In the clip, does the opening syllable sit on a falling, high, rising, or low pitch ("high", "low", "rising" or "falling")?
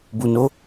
low